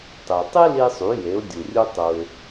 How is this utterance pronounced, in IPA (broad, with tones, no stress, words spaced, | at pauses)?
tˤe˩tˤi˥li˧sˤy˩˧ je˩˧ʊ̯dʲu˩rʲu˧ tˤu˩ɪ̯